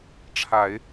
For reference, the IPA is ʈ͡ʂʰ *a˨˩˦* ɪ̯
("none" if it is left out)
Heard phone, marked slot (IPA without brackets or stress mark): a˨˩˦